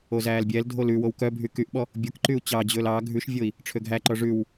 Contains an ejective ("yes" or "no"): no